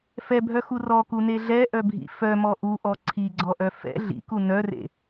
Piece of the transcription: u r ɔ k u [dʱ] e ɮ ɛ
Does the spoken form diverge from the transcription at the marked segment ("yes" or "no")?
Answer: yes